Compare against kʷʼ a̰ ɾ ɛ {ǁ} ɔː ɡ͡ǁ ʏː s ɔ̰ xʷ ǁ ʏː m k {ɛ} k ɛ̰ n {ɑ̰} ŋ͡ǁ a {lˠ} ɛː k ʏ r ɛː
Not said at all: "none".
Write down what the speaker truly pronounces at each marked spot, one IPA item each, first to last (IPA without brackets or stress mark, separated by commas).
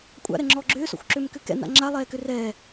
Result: ŋ͡ǁ, ʏ, a̰, lˠ